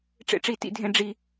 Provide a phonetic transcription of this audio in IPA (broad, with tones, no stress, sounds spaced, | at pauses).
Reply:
ʈ͡ʂ ḛ˦ ʈ͡ʂ i˦˨ t ḭ˦ dʱ ẽ˦ ɖ͡ʐ i˦